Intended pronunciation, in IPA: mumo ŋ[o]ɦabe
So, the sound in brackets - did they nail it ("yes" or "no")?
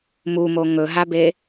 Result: no